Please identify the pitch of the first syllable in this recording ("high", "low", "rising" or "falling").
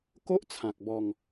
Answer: high